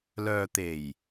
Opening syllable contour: low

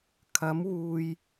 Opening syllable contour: rising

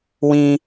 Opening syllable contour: high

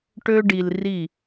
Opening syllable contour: high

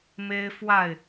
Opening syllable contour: high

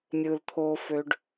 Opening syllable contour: low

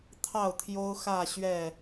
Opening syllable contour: falling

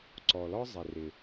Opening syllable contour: low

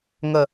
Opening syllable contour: low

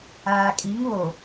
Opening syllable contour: low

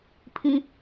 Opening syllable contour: high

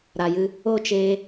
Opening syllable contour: low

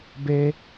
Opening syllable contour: high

